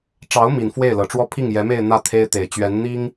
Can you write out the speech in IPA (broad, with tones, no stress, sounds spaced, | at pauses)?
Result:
ʈ͡ʂ ɑ˧˥ ʊ̯ m i˨˩ n f w e˥˩ ɪ̯ l ɤ˨˩ ʈ͡ʂ w ɔ˥˧ pʰ i˥˩ ŋ j ɛ˧˥ m e˥˧ ɪ̯ n̪ ä˥˩ t̪ʰ e˥ ɪ̯ t̪ e˨˩ ɪ̯ t͡ɕ ɥ ɛ˧˥ n n̪ i˥ ŋ